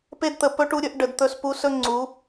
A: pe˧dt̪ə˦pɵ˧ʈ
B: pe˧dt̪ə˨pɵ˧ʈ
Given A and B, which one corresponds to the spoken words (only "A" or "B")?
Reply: B